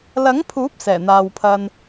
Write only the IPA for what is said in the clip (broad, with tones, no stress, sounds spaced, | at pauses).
l ɐ˨˥ ŋ pʰ uː˨˥ p̚ s ɛː˨˩ n̪ aː˨ w pʰ ɐ˧ n